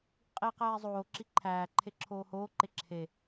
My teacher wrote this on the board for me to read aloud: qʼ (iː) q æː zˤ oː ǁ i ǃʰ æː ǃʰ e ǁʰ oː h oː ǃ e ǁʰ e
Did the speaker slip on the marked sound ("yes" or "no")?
no